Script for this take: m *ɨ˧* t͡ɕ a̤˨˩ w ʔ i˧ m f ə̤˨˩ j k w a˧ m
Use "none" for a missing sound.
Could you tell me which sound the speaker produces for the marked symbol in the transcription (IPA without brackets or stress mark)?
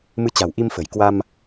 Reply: ɨ˧